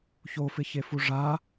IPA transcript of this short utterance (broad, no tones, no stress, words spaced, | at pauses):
çofɪçefu ʐa